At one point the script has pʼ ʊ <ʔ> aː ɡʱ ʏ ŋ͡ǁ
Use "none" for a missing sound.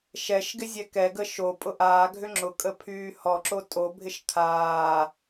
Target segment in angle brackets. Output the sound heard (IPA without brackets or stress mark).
ʔ